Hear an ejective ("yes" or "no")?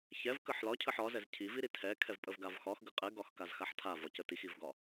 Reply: yes